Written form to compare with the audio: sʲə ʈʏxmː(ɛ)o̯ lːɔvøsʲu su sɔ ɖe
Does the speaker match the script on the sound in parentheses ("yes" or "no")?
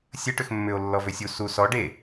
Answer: no